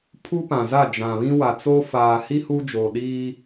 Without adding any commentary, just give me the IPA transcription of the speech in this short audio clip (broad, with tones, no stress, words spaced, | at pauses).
pʰu˦pã˨za˦˨ d͡ʒã˨βĩ˦ wa˨t͡so˦ faː˨hi˦ hu˦d͡ʒo˨ ɗiː˦